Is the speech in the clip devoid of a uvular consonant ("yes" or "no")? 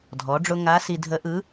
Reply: yes